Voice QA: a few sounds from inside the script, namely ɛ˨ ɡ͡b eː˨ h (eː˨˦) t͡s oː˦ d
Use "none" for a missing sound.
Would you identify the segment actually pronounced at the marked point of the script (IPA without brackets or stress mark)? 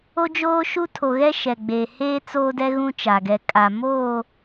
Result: eː˦